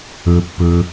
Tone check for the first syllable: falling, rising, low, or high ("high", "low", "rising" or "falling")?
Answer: low